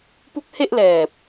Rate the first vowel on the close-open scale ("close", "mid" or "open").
close